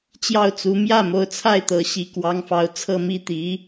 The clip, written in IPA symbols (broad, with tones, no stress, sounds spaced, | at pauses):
t͡ɕ j ɑ˥˩ ʊ̯ t͡s u˧˥ m j ä˥˩ m o˧˥ ʊ̯ t͡sʰ a˥˩ ɪ̯ t̪ ɤ˧˥ ɕ i˧˥ k w ɑ˧˥ ŋ f ɑ˧˥ ʊ̯ t͡sʰ ɤ˥˩ m i˥ t̪ i˧˥